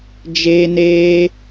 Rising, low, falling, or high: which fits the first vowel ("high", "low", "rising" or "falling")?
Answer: high